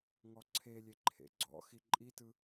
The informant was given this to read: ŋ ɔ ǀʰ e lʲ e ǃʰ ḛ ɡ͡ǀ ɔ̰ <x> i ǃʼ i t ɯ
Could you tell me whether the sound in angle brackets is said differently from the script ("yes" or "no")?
no